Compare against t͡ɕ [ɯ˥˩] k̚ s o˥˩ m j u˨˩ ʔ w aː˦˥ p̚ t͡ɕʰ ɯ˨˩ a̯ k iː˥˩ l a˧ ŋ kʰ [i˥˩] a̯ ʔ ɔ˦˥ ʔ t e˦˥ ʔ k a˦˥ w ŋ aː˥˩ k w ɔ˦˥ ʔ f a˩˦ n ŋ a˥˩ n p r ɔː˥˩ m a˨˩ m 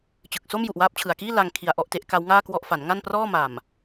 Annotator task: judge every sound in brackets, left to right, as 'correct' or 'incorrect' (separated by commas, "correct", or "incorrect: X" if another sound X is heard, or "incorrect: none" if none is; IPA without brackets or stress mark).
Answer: incorrect: ɯ˨˩, incorrect: i˧